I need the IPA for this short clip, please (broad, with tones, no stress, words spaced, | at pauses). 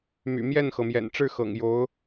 my̰˨˩mjɛ˥˩nxɤ˩mjɛ̰˨˩n ʈ͡ʂɻ̩˥˩xɤ̰˨˩ŋ jo˧˥ʊ̯